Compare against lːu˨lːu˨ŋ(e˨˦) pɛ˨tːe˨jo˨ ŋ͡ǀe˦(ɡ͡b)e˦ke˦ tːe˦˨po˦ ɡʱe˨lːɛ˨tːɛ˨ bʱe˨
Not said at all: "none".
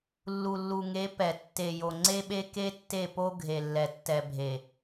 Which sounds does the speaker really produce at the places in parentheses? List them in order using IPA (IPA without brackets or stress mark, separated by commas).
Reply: e˨˦, ɓ